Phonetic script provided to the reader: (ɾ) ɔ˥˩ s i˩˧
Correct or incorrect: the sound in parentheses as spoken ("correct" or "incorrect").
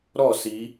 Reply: correct